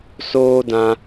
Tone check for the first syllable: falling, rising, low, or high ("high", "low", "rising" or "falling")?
high